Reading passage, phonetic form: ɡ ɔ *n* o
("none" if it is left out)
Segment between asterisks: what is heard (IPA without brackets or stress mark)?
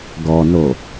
n